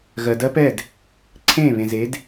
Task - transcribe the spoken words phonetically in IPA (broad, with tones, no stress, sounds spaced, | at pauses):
ɣ ɜ˩ d ɜ˦˥ p ɛ˥˩ d | ǀʰ ẽː˥˩ β ẽ˩ z e˩˥ d